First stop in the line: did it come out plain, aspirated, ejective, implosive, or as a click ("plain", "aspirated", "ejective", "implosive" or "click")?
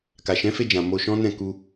plain